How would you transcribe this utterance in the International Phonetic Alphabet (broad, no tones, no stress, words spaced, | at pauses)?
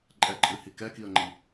ǃʼɛǃʼɨhi kɛkiə̯ŋ͡ǃi